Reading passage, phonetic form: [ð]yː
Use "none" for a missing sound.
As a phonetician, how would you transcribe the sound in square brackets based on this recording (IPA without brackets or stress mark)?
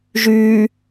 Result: ʒ